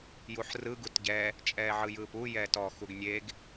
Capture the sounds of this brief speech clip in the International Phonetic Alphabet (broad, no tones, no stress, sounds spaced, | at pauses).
j u ħ r ɯ ɡ u t ɟ ɛ | t͡ʃʼ ɛː ʕ ɯ j ɯː p u j ɛː t ɔ x u ɡ nʲ e ɡ